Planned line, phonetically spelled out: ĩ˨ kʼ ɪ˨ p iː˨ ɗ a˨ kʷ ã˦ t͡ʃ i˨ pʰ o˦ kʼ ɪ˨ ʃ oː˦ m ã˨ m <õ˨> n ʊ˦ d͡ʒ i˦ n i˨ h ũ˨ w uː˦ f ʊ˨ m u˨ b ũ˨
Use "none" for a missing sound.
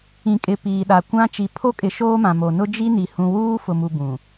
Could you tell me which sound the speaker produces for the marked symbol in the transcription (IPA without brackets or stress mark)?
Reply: o˨